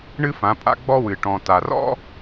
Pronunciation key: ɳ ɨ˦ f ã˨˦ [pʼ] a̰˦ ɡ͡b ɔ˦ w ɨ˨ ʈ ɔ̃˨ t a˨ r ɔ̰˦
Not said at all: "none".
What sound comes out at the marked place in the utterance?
pʼ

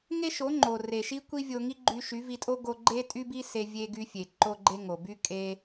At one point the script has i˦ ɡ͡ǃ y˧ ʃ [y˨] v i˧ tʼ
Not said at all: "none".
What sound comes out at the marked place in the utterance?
y˨˦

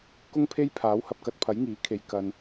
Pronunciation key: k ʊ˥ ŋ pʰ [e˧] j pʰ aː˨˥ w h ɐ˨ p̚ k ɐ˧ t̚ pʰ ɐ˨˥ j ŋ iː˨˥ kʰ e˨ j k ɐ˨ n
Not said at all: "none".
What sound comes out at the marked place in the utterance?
e˥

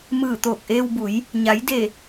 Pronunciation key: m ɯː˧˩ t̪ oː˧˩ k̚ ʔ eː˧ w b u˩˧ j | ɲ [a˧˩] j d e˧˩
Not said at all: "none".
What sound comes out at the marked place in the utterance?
a˩˧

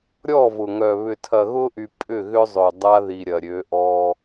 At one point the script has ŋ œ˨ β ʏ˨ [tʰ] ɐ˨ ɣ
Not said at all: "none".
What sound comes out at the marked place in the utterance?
tʰ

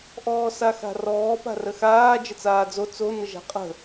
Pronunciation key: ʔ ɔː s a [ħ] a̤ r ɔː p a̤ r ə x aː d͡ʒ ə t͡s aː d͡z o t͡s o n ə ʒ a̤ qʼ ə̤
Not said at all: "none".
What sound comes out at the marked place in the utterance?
x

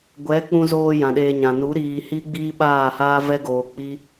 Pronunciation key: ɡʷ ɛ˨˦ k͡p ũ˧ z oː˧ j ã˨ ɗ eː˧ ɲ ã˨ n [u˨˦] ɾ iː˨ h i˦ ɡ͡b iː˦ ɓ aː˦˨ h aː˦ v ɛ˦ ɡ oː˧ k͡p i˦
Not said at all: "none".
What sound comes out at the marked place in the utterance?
u˨˦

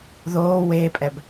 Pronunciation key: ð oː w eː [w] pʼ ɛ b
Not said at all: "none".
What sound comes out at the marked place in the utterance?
none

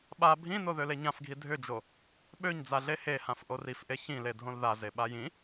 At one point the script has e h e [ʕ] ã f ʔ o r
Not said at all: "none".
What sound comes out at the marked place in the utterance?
h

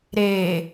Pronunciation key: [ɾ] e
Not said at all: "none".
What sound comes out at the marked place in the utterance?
ɾ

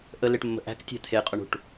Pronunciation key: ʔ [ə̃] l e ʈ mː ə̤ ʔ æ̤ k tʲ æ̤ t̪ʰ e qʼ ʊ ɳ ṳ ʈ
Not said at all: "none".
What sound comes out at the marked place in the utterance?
ə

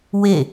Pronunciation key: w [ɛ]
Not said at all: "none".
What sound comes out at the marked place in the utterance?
e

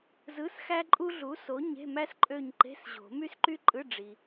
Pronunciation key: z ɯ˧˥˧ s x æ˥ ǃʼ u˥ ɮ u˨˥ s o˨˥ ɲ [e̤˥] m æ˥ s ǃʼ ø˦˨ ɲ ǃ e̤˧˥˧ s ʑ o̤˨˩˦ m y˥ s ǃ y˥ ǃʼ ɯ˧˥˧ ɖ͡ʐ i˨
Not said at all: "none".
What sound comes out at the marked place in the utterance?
e̤˧˥˧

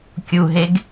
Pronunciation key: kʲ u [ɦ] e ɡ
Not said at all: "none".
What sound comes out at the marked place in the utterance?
ɦ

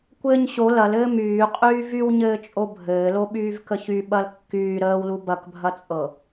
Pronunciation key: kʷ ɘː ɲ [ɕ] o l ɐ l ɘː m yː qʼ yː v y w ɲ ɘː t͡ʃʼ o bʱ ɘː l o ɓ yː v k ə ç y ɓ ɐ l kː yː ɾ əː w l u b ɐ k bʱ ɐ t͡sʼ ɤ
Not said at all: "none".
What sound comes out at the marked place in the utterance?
ɕ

